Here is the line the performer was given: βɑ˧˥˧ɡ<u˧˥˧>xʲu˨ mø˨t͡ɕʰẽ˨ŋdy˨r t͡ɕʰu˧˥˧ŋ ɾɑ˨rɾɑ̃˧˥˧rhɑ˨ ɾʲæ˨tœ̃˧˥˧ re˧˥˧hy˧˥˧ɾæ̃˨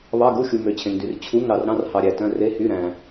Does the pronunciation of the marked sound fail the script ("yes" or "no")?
no